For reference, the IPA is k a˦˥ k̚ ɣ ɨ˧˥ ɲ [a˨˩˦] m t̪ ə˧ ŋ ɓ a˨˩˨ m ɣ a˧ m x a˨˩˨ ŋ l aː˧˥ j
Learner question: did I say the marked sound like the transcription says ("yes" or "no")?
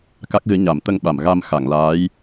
yes